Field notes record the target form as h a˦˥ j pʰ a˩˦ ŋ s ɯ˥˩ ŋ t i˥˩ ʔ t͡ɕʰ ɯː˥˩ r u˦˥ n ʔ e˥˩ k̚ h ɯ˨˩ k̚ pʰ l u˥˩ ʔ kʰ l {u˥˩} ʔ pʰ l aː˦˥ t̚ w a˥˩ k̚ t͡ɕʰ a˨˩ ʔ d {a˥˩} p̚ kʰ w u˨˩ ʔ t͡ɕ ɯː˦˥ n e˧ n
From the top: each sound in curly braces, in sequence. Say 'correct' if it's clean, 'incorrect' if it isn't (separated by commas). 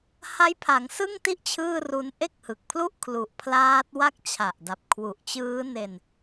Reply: incorrect, incorrect